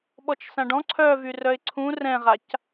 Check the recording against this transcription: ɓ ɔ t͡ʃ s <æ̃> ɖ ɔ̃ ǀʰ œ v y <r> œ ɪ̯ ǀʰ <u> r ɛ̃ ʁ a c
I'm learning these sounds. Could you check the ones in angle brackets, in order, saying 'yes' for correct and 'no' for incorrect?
no, yes, no

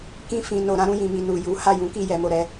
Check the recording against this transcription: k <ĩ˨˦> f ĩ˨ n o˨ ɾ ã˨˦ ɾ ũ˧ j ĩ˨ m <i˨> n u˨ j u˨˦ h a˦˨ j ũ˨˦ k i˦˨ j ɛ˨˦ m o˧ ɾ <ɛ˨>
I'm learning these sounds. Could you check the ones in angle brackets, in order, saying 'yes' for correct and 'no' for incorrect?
no, yes, no

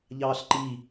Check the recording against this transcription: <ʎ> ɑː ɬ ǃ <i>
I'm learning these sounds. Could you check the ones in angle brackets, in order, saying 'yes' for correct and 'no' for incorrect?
yes, yes

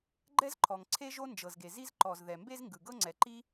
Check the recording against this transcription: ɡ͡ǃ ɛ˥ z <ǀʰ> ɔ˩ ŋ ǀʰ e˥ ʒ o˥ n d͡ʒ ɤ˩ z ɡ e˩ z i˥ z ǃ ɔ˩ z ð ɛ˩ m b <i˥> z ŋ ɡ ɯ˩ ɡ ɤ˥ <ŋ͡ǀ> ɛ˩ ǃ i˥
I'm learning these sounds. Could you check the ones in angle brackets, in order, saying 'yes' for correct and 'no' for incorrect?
no, no, yes

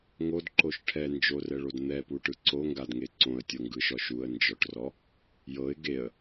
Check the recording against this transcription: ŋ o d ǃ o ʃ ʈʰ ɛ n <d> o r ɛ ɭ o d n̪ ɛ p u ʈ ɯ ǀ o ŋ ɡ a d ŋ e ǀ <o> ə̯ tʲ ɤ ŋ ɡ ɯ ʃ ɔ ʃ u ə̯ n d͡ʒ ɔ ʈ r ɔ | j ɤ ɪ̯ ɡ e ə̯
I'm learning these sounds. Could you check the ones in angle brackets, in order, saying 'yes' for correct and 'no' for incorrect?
no, no

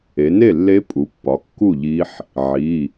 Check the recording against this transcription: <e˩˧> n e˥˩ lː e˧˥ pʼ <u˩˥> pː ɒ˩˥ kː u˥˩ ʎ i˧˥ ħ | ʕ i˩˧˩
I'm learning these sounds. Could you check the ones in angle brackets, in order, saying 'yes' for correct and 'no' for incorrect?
yes, yes

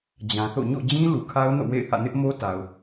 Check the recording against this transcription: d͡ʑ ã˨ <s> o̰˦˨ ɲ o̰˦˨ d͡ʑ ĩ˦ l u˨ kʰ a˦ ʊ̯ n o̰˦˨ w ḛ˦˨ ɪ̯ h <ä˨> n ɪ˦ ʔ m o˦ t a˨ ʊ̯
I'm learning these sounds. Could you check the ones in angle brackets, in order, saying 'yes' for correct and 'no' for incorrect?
no, no

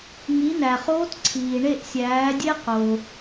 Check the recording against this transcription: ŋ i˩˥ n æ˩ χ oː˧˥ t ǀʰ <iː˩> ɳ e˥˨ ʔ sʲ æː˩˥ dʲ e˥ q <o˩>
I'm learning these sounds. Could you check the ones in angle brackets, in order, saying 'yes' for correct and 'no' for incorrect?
yes, yes

